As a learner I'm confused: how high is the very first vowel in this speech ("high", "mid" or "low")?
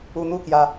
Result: high